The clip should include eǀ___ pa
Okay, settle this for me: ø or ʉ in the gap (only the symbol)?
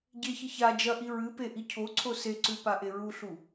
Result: ʉ